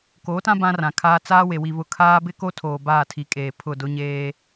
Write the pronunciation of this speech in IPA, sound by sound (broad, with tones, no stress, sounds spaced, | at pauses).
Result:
k oː˨˦ t ã˦ b ã˦ r ã˨ kʰ aː˦ t͡s aː˦ w e˨ w i˨ β ʊ˨ kʰ aː˦ b ɪ˦ k o˦ tʰ oː˨ b aː˦˨ tʰ i˨˦ kʼ eː˨ pʰ ʊ˦˨ d ʊ˦ ɲ eː˦